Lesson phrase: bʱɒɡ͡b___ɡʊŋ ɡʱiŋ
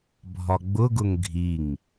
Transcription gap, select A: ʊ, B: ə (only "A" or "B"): A